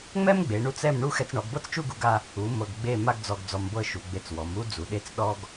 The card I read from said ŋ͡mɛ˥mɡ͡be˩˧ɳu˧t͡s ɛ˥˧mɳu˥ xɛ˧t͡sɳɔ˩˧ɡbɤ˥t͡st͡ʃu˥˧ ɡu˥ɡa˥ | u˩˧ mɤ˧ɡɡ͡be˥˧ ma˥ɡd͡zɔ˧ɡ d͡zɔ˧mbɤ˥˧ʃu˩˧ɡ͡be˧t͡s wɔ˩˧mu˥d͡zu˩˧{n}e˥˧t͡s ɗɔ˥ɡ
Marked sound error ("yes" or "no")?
yes